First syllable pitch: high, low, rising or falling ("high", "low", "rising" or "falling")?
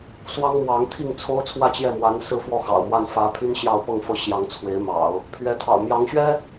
high